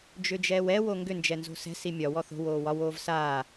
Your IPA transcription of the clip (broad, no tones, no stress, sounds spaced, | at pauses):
d͡ʒ ʏ d͡ʒ ɛː w ɛ w o ŋ ɡ ʏ n d͡ʒ ɛ n z o̤ s ɛ̤ s i mʲ ɒ w ɔ θ o̤ w oː w ɒ w oː v s aː